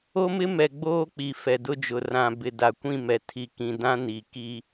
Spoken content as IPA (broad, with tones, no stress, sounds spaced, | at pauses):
o˦ m ɪ˦ m ɛ˨ ɡ͡b oː˦ k͡p i˨ f ɛ˨ d ʊ˦ d͡ʒ ʊ˨ r ã˨ b ɪ˨ d a˨ kʷ ĩ˦˨ m ɛ˨ tʰ i˨ k ĩ˨ d ã˦ n i˨ k i˦